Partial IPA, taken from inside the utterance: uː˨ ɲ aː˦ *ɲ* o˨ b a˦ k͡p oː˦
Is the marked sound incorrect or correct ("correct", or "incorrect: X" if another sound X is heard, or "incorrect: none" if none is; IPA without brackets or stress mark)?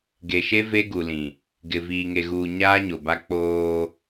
correct